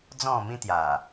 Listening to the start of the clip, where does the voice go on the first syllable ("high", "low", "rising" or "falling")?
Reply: falling